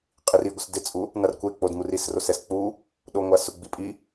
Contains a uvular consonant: yes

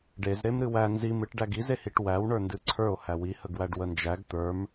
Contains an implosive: no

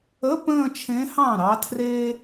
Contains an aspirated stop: yes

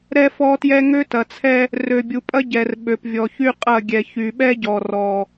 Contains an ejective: yes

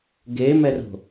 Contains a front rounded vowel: no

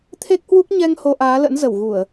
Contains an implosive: no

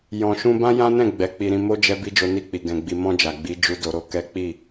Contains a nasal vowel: yes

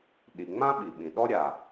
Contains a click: no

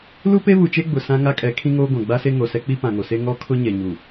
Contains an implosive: no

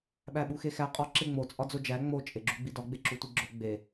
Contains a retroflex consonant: no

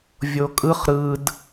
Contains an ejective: yes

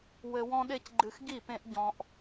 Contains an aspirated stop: no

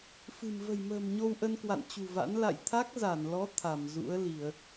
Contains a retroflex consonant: no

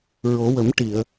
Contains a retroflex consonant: yes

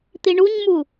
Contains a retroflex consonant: yes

